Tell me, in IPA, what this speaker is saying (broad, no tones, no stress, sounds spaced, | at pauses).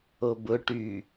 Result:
o b ʊ ʈ y